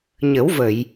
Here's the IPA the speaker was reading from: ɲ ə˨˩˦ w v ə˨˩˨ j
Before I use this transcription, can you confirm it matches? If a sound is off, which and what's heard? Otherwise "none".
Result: none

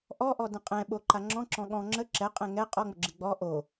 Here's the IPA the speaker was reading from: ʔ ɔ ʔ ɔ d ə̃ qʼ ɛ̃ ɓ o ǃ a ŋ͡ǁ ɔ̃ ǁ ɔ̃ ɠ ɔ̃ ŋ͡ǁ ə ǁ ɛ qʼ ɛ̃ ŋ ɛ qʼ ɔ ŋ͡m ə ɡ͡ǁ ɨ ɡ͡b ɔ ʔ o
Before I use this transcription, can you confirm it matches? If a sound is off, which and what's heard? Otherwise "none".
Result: none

